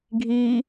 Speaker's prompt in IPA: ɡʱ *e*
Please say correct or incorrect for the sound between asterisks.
incorrect